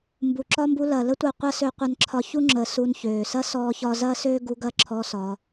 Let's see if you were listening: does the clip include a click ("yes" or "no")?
yes